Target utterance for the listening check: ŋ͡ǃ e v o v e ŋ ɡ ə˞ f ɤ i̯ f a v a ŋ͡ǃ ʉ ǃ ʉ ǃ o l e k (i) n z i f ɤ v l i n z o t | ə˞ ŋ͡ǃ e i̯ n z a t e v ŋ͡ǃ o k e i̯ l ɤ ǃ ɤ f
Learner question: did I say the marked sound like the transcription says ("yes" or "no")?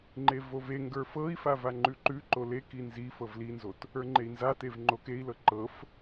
yes